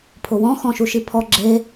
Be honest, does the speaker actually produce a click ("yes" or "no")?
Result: yes